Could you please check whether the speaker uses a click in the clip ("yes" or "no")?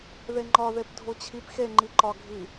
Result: yes